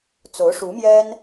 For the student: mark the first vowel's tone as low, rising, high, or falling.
rising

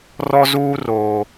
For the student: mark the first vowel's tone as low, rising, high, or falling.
high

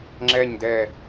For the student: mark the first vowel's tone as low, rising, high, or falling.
low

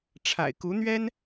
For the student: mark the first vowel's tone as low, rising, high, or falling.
low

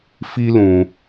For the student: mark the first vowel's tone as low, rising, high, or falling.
high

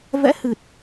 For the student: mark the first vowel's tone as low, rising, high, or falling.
rising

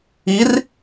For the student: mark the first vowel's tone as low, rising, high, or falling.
rising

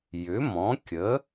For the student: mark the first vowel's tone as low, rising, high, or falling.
rising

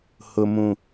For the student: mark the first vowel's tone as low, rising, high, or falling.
low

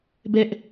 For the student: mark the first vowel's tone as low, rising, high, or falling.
high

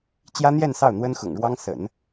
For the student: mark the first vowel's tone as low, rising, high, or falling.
high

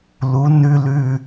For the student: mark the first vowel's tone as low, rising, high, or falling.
rising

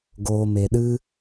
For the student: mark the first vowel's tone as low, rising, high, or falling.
low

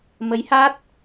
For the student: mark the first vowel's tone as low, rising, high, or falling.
rising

